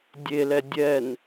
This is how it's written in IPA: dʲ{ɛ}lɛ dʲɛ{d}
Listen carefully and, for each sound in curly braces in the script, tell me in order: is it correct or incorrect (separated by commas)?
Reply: incorrect, incorrect